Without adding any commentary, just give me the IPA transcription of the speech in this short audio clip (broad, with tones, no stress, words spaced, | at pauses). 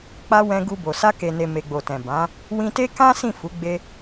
k͡pa˧ wɛ̃˧ɡu˧bo˨ sa˧ke˨ne˨ me˨ɡ͡bo˨tɛ̃˨ bã˨˦ | wĩ˧te˦ kã˦ sĩ˦˨fu˨˦ ɡ͡be˧